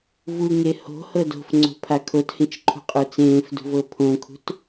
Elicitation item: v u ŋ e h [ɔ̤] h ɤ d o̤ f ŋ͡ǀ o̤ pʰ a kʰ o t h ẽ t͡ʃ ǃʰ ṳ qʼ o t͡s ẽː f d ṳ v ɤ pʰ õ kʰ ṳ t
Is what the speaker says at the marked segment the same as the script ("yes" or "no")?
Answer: no